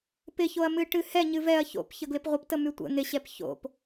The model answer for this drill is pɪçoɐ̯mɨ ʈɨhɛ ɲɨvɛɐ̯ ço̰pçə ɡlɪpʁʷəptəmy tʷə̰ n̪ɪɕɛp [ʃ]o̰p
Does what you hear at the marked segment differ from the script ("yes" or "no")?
yes